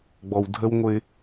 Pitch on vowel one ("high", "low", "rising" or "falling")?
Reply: low